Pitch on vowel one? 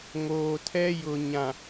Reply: low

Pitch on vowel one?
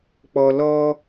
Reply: low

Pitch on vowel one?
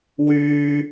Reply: high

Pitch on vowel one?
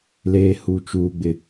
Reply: high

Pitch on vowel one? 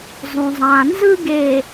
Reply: low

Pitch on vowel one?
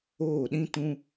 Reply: falling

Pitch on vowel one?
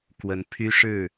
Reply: rising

